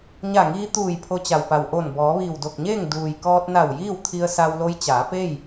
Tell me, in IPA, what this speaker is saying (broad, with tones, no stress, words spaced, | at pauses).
ɲa˧˩ŋiː˧ t̪uː˧˩j pʰo˧t͡ɕa˩wpa˩w ʔo˧˩n bɔː˩˧ʋiː˧˩wdo˧˩k̚ɲeː˥˨ŋ duː˩jkɔː˧t̚na˧˩w jiː˥˨wt̪ʰi˧ə̯sa˧wlo˧˥j t͡ɕaː˩˧pe˥˨j